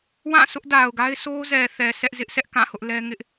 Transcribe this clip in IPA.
w ã˦˨ sʰ ʊ˦ ʔ d a˨ ʊ̯ ɡ a˦ ɪ̯ s o˦ z ɛ˨ θ ɛ˨ s ɛ˦ ʔ z ɪ˦ ʔ s ɛ˦ ʔ k ã˦˨ h ʊ˦ ʔ l ɛ˦ ŋ ɪ˦ ʔ

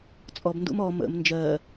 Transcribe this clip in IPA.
t͡sʼ ɔ b n d ṵ m ɔ m ə̰ m n d͡ʒ ɜ

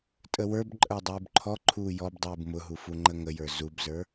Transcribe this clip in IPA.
tʼ ə w ə˞ b ǃʼ ə˞ dˤ uː b ǃʰ ɔ ǃʰ uː j ɔ b dˤ uː b m ʊ ɦ u f u ŋ͡ǃ ə ŋ ə j ə˞ z u b z ə˞

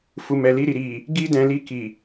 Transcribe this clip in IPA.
f u˨ m ɛ˨ l i˧ ɾ i˨ ɾ i˨ | ɡ i˧ d ɛ̃˨ l i˧ k i˨

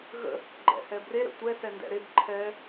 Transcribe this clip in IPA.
ɣ ə̰ | ɡ͡ǃ ɛ̰ h ɛ b r e ɾ ə̰ tʷ ɛ s ɛ n d ɛ̰ ɾ e b ǃʰ ɛ

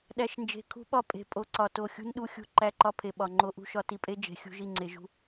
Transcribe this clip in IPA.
ɗ æ˨ ʃ n d͡ʒ e̤˨ kʰ ṳ˦ ɓ ɒ˦ pʼ e̤˨ pʼ o˨˦ ǀ ɒ˨ t o˨ xʲ ṳ˦ n ɗ u˦ xʲ ṳ˦ ǃ æ˦ ǃ ɒ˦ pʰ e˨ ɓ ɒ˨ ŋ͡ǃ o˦ ʔ ṳ˦ ʃ ɒ˦ t i˨ pʼ e˦ d͡ʒ e̤˨ xʲ ṳ˦ ʒ i˦˨ ŋ͡ǀ e˨ ʒ ṳ˦

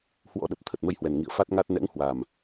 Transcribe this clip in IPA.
h w ɔ̰˧˥ ɗ ə˨˩ p̚ t̪ʰ ə˨˩ t̚ m ə˧ j h w ɛ˨˩ n ŋ ḭ˧˨ ə̯ f a˦˥ t̚ ŋ a˦˥ t̚ n ɛ̰˧˥ ŋ h w a˨˩ m

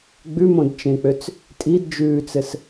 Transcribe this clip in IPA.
ɡ͡b ʉ m õ d t͡ʃ ẽ k͡p ø t͡s | tʼ i d d͡ʒ ʉː t͡s ɘ s

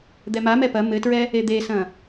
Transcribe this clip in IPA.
d̪ ɛ m a m ɛ p ɐ m ɘ t ɹ ɛ | e d̪ e s ɐ̃

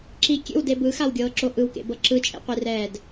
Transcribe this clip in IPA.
ǁ i kʲ ḛ w d e b ɯ x a w ɡʲ ɤː ǁ o ʔ ɯ w k ḛ b ɤ ǁ ɯ t͡ʃʼ ḛ qʷ i r ɛː d

